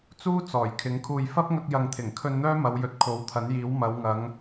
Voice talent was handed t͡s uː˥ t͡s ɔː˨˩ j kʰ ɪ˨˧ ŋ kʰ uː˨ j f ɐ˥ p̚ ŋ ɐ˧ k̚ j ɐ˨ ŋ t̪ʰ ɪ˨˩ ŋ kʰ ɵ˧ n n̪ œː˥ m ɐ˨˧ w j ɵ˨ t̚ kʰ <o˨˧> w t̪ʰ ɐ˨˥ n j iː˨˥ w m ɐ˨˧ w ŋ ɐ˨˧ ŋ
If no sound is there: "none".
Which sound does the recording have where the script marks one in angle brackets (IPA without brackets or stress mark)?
o˨˥